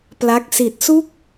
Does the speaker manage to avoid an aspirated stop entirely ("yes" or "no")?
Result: yes